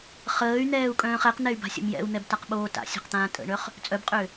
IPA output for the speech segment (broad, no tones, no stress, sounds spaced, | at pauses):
χ əː y̯ n̪ ɛː u̯ kʼ œ̃ː χ ɛ q n̪ ɛ y̯ b a̤ sʲ ə̰ m j ɛ̰ u̯ n̪ ɛ b t a q ɓ oː t a̰ sʲ ɛ̤ q t̪ ãː tʼ ə̰ ɳ œ χ | t͡sʼ œ b qʼ ø